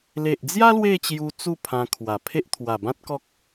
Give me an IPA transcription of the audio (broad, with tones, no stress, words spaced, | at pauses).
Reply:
le˨ʔd͡zja˦ lwe˥˧t͡ɕju˧ t͡su˥˧ pʰã˧kʰwa˨˩pʰe˦ʔ t̪ʰwa˨˩bã˦t̚kɔ˦k̚